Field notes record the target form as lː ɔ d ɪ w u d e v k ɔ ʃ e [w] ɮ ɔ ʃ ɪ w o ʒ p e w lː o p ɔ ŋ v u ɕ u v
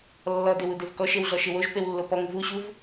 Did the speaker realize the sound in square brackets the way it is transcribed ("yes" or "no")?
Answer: yes